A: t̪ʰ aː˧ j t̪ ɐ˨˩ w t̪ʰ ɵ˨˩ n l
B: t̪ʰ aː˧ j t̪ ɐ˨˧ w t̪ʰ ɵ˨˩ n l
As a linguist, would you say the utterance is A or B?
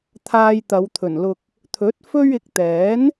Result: B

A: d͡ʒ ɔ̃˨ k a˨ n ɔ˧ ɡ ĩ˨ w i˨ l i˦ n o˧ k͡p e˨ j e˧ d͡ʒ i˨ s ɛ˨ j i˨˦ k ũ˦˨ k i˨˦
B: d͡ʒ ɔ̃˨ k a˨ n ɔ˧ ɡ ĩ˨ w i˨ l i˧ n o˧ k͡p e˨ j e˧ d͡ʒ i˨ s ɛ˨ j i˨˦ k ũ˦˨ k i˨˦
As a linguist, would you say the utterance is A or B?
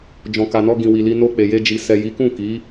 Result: B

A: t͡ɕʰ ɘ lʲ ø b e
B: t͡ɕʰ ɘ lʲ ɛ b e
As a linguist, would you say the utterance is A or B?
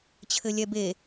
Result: B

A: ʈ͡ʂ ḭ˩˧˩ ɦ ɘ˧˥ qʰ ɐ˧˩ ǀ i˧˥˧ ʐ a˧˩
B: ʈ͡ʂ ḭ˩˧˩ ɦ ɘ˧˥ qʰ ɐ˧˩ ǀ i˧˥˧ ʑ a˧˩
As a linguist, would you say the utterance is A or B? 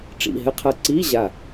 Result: B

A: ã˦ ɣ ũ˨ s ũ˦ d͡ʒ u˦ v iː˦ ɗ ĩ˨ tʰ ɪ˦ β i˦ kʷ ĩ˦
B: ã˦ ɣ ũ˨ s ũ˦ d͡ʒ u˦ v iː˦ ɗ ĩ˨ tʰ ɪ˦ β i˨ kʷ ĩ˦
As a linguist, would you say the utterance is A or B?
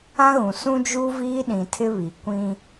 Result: B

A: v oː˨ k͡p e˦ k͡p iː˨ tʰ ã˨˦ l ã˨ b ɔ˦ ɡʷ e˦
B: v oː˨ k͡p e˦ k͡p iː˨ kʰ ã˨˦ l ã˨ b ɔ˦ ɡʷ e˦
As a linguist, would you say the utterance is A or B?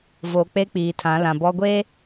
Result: A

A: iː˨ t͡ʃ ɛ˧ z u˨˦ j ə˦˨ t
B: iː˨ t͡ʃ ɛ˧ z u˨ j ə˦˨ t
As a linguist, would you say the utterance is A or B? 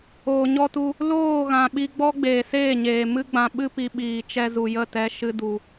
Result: B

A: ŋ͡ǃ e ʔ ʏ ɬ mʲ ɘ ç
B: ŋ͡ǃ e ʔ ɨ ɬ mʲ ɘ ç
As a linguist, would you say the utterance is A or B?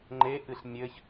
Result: B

